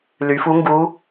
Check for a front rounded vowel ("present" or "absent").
present